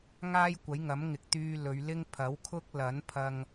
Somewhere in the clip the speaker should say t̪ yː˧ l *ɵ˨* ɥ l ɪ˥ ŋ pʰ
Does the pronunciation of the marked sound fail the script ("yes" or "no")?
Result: yes